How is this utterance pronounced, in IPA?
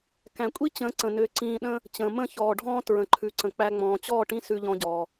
k æ̃˨ kʷʼ i˦ t͡ɕ ə̃ː˨˦ ǀ ə̃˨ n ʏː˧ ǀ ĩː˧ ɗ ə̃ː˦ | t͡ɕ ə̃ː˨ m ə̃˦˨ ç ɔː˨ ɖʱ ɔ̃ː˦ t ɹ ə̃˨ ǃʰ ʉ˨ ǀ ə̃˨ k͡p æ˧ ŋ͡m ɔ̃ː˨ t͡ɕ ɔː˦˨ ʈ ĩ˦ s ʉ˧ ʎ ɔ̃˧ ɟ ɔː˨

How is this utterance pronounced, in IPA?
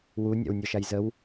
w u nʲ a̰ w nʲ ɒ ʃ a j z ə w

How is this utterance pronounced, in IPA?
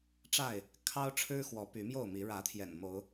ʈ͡ʂ a˥˨ ɪ̯ | kʰ ɑ˦ ʊ̯ ʈ͡ʂʰ ɻ̩˦ x w ɔ˨˦ p y˨˦ m j o˥˨ ʊ̯ m i˨˦ ɻ ä˨˦ t̪ʰ j ɛ̰˨˩ n m o˨˦ ʊ̯

